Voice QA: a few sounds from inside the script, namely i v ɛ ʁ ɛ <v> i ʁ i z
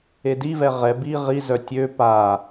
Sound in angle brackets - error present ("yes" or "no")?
yes